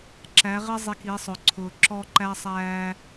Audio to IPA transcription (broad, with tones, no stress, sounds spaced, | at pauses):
ǁ æ˨˦ ʁ ɪ˦ zˤ i˨ k i˨˦ sˤ ʊ˨ ǀʰ ʊː˨ ǁ ɔ˦ ǃ æ˦ sˤ æː˦